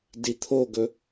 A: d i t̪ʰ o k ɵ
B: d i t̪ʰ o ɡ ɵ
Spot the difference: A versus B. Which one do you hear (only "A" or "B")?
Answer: B